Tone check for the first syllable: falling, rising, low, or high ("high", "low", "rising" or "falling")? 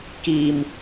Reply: low